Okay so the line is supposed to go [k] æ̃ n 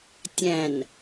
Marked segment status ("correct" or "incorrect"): incorrect